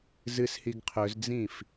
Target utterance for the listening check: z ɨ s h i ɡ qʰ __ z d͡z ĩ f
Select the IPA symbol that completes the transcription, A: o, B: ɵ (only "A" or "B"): B